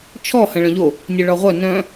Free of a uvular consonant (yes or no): no